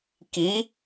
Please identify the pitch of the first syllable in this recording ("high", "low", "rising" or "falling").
rising